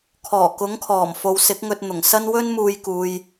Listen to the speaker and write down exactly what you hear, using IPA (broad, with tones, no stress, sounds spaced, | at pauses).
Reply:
kʰ ɔː˨˩ k ʊ˨˥ ŋ kʰ ɔː˨˩ m f o˨ w s ɪ˨˥ k̚ ŋ ɵ˧ t̚ n̪ ʊ˨˩ ŋ s ɐ˥ n w ɵ˥ n m uː˧ j k uː˨ j